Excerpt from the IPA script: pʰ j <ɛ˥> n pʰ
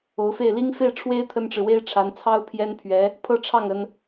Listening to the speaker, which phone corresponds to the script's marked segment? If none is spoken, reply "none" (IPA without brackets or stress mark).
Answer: ɛ˥